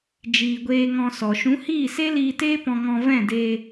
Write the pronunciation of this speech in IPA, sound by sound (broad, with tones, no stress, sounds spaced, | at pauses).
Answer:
d͡ʒ iː˨ ɡʷ eː˧ ŋ ɔ̃˧ s ɔ˨ ʃ ũ˨˦ h iː˦˨ s e˦ l iː˧ t eː˦ p ɔ̃˧ ŋ ɔ̃˧ v ɛ̃˦˨ d e˧